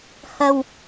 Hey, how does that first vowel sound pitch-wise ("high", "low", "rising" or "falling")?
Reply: low